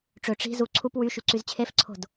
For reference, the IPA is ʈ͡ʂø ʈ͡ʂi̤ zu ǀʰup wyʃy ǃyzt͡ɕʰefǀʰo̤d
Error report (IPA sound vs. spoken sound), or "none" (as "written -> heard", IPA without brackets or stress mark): ǃ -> ǀ